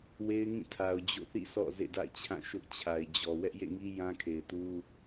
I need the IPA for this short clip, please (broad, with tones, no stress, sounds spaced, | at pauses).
w e˦ ɪ̯ ŋ ĩ˦˨ tʰ a˨ ʊ̯ d͡ʑ o̰˦˨ θ ḭ˦˨ s ɔ̰˦˨ z ḛ˦˨ d a̰˦˨ ɪ̯ t͡ɕʰ ã˦˨ ʃ ʊ˦ ʔ t͡ɕʰ a˨ ɪ̯ d͡ʑ ɔ˨ w ɛ˦ ʔ j ḛ˦˨ ŋ i˦ j ã˦ kʰ e˨ ɪ̯ t u˦